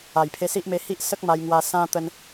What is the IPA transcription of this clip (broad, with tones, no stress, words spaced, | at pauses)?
a˨˩jpʰe˧si˦ʔme˧ hi˦ʔsə˦k̚ma˧jŋwa˧ sã˦ t̪ə˦n